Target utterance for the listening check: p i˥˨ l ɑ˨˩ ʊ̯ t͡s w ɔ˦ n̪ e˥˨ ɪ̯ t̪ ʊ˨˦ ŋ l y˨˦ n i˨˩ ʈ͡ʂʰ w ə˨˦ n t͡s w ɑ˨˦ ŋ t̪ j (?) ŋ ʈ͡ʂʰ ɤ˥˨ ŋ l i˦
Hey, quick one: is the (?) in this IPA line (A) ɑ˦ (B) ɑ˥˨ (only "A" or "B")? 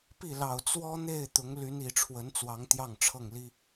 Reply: B